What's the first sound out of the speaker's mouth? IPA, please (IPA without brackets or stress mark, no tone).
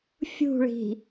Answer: fʲ